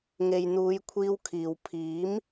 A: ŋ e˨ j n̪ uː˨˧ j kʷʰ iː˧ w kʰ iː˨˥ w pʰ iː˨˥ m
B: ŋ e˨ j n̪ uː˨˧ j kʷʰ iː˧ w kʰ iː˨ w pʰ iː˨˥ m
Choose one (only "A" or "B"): B